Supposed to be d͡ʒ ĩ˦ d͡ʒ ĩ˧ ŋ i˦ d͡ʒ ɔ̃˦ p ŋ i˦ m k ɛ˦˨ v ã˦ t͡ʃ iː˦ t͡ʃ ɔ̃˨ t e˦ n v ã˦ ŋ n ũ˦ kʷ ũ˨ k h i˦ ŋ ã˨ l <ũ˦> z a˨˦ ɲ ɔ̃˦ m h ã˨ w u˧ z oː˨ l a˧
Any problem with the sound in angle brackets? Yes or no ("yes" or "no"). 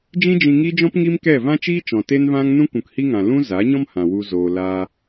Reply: no